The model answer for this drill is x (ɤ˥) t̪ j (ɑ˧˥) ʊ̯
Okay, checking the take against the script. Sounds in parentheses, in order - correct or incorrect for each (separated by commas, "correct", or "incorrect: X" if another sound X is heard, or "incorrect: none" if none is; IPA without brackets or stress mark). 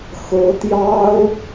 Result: incorrect: ɤ˧˥, incorrect: ɑ˥